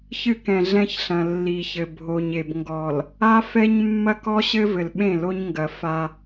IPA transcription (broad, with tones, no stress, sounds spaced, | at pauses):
ç ɨ˦ k ɛ̃˨ ɮ ɛ̃˦ ç ɬ ɐ̃˨ lː i˨ ç ɘ˨ bʱ o˨ ɲ e˨ b ŋ ɡ ɔ˨ l | a˦ f ɛ˦ ɲ mː ɐ˦ k ɔ˦ ɕ ɘ˦ v ɘ˨ l ɓ ẽ˦˨ l o˦ ɲ ŋ ɡ ɐ˨ f a˦